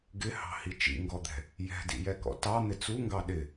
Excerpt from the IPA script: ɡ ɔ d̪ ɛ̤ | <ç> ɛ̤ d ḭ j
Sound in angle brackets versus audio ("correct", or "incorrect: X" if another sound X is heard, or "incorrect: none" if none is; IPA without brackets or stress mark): incorrect: j